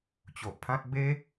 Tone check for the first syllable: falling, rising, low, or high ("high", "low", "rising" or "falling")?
low